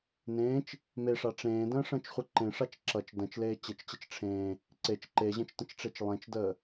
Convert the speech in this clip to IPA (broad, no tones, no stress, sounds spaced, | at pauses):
n ẽː t͡ʃ | m e ʂ a ʈ͡ʂ ẽː d ə̃ː ʂ ə̃ː t͡ʃ χʷ ə ǃ ẽ ʂ a t͡ʃ ǁ ʌ t͡ʃ d ə̃ t͡ʃ l eː t͡ɕ ɘ t͡ʃ t͡ɕ ə t͡ʃ ʈ͡ʂʰ ẽː | ǀ e t͡ʃ ǃ e ʑ ə̃ t͡ʃ t ə̃ t͡ʃ ʈ͡ʂ e t͡ʃ lˠ ẽ t͡ʃ d əː